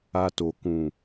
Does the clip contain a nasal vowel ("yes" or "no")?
yes